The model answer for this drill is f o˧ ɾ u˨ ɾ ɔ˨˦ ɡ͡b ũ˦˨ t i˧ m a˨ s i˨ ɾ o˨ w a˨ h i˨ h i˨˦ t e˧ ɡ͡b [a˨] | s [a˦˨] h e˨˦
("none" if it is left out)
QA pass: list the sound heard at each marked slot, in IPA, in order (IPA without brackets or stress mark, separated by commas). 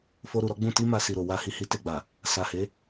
a˨, a˨